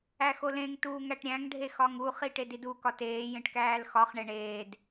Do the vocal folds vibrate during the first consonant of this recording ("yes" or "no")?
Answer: no